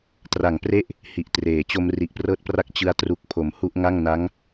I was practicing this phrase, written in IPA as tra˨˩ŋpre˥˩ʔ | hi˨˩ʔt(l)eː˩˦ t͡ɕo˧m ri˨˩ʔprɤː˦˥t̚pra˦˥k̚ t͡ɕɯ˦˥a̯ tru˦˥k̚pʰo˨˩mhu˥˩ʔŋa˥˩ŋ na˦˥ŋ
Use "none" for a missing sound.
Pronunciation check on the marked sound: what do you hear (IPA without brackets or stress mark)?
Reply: r